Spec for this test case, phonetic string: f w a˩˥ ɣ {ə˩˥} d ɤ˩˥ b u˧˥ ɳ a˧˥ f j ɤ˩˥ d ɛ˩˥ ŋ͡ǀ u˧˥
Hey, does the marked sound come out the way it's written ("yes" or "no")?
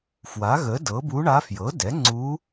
yes